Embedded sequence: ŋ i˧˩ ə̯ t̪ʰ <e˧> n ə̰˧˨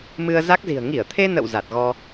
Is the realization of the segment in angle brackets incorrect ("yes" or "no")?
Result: no